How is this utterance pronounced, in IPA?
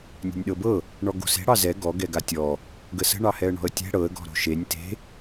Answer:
nʲɛ̤nʲɗɤbɤ | ɳɔɡo̤se̤ ɽɑzɛ ɡɔ ɡɛɡatʲɔ | ɡəsə̤ ɳɑhɛə̯ɳɔ̤ə̯tʲɛ̤ ɽɤə̯ ɡɔ̤ɾo̤ʃenʲ te̤

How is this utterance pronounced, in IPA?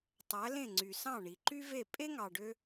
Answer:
tˤæ˩˥lẽ˥˩ŋ͡ǀy˩ sɑ̃˥˩ɳi˩ǃy˥ve˥˩ pʼe˥ŋɑ˩ɖø˧

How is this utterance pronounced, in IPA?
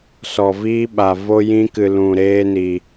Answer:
sɔ˧viː˦ ɓa˧vo˦jĩ˦kɨ˧ lũ˧ɾeː˦ ni˧

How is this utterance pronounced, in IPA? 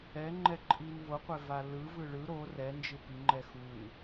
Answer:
ɛŋ͡ǃɛǃʼin voqʷɛva lɯ vɯɭɯ ɾo rɛnd͡ʒɯ piŋ͡ǃɛ xun

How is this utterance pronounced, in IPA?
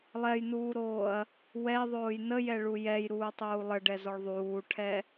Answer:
lˠɛjnuːɾoːɐ̯ | wɛðˤoːj nəjɛɭu jɛjɾuːtˤuː lˠəɖɛzɔɭ ðˤuːʈʰɛ

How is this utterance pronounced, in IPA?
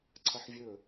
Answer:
ǀʰɐħvʲɵ

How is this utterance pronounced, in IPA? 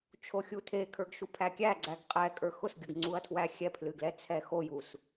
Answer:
t͡ʃʰoxʲutʰekʰə˞ɡ ʃupʰækʲæɡ͡ǀæɡ qʼɛkʼə˞ xʊsɡʲʊɡ ŋ͡ǀuɐ̯tʰwæxʲɛpʰlɨ ɡlɛt͡sʰɛxojus

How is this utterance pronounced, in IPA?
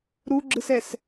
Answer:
ɾuɡ͡ǁɯsɛs

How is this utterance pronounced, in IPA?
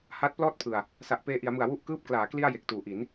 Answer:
ha˦˥t̚plɔː˥˩t̚pʰɯ˨˩a̯ | sa˨˩ʔpeː˧ʔi˩˦a̯mɯ˨˩a̯ wu˦˥ʔkɯː˦˥p̚klaː˩˦ kli˥˩a̯ je˨˩k̚tuː˩˦ʔi˩˦n

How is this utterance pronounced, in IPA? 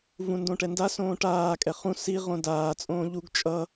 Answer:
vũndõʈɛnda sõːʈaː kʼɛχũ si ʁõdaː t͡sʼõːʎuɡ t͡ʃʼʌ

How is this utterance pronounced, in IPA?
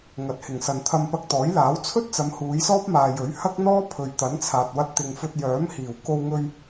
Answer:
ŋɐ˨t̚hɪ˨˩ŋsɐ˨n t̪ʰɐ˧mpɐ˧k̚t̪ɔː˨˥jlaː˨˥w t͡sʰɵ˥t̚t͡sɐ˨˧m huː˨˧jsɔː˥p̚maː˨jɵ˨˥ɥ hɐ˥k̚n̪ɔː˥ pʰɵ˨ɥt̪ɐ˨˥nt͡sʰaː˨t̚wɐ˧t̚ t̪ɪ˨ŋfɵ˧t̚jœː˨˥m hiː˨˩w ko˧wŋɵ˧ɥ

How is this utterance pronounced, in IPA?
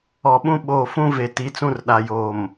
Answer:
ɔ˨ɓũ˦ ɓoː˨fũ˦ ve˨ti˨˦t͡sũ˦rɗa˨ joː˨m

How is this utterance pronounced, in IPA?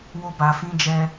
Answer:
wo˦ba˧fĩ˦d͡ʒɛ˦

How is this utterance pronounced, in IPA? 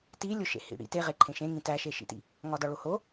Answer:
tilʲoʃḛhḭ ɽḭ teʁe ǃʰẽʃẽŋĩ tæʃeʃḭtḭ | ŋɒdɒɭoho

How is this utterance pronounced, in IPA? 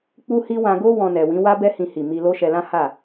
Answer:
k͡pu˦hi˦ wã˧ɡo˦ wɔ̃˧nɛ˨wĩ˨˦ wa˦bɛ˦hĩ˧hi˨ mi˧lo˦ ʃɛ˧lã˦ha˦˨

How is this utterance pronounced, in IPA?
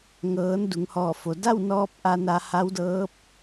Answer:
ŋɤː˩˧n du˩˧ŋhɔː˧˩fo˩ da˥˨wnɔː˧p̚ ʔa˧na˧ha˧˥wdɤː˧˥p̚

